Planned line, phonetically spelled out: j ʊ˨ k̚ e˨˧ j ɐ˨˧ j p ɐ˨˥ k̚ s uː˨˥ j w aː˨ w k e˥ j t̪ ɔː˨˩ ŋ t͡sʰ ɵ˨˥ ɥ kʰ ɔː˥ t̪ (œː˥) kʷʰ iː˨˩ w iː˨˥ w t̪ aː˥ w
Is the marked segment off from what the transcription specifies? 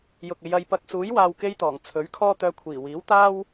yes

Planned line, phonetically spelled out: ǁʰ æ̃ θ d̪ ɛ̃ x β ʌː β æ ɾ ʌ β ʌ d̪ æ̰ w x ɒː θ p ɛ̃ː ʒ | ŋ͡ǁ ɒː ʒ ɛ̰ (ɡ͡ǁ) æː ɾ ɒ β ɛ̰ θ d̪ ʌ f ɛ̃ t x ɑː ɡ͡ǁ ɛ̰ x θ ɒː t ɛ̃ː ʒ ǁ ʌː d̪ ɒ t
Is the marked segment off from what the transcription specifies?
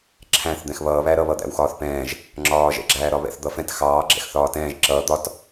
no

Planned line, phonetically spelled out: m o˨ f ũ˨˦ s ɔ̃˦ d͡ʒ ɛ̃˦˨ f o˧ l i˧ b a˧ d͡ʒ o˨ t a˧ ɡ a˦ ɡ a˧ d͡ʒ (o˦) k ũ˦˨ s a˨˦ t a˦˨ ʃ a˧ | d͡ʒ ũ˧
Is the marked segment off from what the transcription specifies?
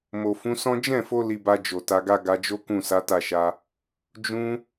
no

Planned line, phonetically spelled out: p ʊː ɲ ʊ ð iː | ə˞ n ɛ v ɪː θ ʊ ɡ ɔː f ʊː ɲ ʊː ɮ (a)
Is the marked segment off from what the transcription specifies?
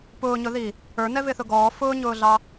yes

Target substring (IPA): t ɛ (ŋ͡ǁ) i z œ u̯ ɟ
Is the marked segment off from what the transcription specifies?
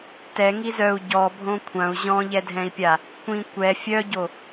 yes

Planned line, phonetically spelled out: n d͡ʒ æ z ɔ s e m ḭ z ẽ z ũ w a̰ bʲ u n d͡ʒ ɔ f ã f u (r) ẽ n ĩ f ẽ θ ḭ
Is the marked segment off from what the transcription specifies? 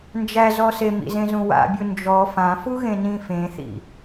yes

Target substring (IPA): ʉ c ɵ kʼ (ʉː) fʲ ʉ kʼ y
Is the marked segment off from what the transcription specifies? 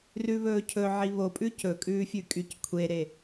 no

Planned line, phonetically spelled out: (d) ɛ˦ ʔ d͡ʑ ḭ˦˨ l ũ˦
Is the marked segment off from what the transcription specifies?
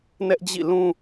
yes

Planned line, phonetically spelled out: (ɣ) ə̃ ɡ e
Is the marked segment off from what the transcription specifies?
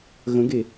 no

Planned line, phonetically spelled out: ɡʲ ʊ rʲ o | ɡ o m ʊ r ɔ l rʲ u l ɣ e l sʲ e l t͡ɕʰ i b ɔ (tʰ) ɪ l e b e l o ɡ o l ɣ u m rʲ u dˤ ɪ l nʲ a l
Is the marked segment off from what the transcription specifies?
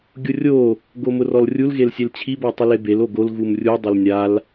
yes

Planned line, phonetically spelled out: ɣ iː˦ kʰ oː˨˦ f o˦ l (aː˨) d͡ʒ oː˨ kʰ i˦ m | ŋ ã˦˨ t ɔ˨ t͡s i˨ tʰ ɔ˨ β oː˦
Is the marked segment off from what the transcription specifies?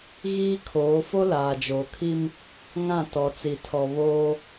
no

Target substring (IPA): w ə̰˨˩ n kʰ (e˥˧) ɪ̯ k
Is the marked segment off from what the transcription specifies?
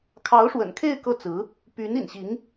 no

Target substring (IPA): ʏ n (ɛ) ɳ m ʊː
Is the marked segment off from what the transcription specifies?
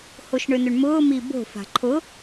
yes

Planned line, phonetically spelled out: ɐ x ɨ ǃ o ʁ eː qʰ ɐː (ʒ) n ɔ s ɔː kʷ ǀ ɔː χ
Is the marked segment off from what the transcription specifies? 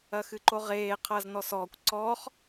yes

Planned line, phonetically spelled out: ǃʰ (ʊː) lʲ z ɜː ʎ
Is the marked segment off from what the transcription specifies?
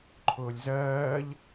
no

